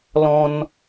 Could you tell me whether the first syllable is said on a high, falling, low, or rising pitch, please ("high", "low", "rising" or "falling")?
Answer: high